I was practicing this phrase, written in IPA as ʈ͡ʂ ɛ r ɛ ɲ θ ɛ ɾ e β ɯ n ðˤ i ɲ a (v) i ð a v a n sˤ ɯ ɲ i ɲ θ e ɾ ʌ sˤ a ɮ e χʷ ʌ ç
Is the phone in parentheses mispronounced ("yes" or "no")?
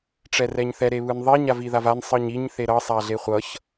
no